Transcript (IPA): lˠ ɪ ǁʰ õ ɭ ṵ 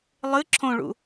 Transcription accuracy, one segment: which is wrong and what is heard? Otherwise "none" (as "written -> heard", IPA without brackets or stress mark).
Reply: ɪ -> ɨ